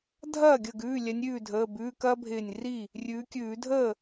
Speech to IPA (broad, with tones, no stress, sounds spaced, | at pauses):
dʱ ɐː˥˩ ɡʲ ə˧˩ ɡ ʉː˩˧˩ lʲ ɛ˨˦ nʲ ɾʲ ʉː˥˩ dʱ əː˩˧˩ b ʉː˩˧˩ k ɐː˦ bʱ ɪː˧˩ nʲ r i˥˩ | rʲ ʉː˨˦ kʲ ʉː˧˩˧ dʱ əː˥˩